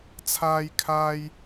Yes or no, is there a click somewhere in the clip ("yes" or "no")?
no